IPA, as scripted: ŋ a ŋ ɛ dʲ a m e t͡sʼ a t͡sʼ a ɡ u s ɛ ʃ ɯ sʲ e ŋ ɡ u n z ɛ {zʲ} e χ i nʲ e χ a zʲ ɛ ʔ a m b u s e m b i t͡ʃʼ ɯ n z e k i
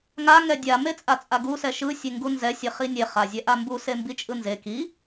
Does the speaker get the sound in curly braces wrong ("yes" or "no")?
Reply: yes